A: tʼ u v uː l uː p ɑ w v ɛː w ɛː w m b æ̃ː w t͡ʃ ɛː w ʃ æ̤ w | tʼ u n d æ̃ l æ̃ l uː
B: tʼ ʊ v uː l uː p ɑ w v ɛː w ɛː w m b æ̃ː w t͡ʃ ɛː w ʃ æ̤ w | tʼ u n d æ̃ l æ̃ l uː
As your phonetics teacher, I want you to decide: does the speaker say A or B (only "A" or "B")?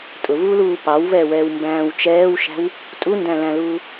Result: B